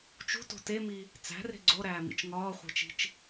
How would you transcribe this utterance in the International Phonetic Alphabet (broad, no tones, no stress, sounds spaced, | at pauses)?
t͡ʃ ṳ t o̤ t e m i | t͡s æ̤ r e̤ ɡ͡ǀ o ɾ æː m ḭ t͡ʃ ŋ ɒː χʷ e̤ t͡ʃ i̤ t͡ʃ